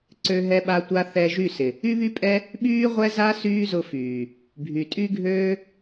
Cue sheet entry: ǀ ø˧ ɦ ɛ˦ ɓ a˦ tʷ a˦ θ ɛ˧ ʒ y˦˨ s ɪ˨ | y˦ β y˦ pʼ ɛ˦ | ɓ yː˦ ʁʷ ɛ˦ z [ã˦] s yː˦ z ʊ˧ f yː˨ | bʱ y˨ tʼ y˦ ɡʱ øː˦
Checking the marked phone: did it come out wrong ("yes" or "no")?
yes